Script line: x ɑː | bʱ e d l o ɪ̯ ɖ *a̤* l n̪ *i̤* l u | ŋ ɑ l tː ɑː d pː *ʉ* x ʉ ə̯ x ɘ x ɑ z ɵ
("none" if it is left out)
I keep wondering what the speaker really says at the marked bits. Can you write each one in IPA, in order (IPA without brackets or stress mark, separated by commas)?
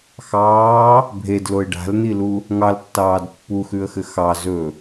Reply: a̤, i, u